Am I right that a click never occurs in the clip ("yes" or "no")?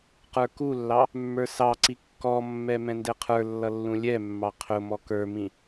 no